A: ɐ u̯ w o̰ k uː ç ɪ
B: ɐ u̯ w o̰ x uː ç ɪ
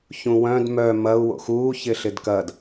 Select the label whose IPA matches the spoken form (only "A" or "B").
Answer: B